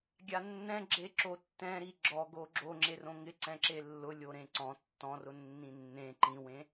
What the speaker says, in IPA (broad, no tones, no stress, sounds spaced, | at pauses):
ɡʲ a nː ɛ̃ ɡ͡ǁ e ǁ o tː ɛ̃ ɾ i ɡ͡ǁ ɔ ɡ o ɡ͡ǁ o ŋ͡ǁ e r õ ŋ ɪ ǀ ɛ̃ ǁ e lː ʊ lʲ o ɾ ẽ ǀ ɔ̃ tː ɔ̃ r ʊ nː ĩ nː ẽ ǃ ĩ w ẽ